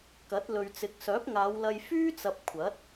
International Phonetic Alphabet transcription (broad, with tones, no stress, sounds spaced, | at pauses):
k ɐ˨˥ t̚ l ɵ˨ ɥ t͡s ɪ˨˥ k̚ s œː˨˥ p̚ ŋ aː˨˧ w l ɐ˧ j f yː˥ t͡s ɐ˨ p̚ kʷʰ ɐ˨˥ t̚